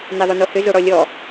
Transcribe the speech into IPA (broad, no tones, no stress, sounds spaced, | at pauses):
n e ðˤ ʏ n o h ʏ z o ɽ ɔ lʲ ɔ